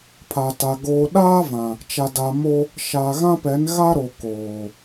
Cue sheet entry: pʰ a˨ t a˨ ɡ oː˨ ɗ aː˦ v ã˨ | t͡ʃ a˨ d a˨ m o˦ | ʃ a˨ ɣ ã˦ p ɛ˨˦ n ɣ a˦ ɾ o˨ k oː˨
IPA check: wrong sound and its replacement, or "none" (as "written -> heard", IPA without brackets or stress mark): none